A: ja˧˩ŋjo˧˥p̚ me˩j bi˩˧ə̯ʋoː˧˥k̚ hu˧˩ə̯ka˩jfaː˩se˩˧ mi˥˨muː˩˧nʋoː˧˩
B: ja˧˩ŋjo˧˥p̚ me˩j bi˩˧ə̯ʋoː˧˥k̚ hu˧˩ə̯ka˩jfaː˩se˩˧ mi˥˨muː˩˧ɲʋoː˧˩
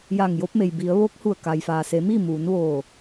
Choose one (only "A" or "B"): A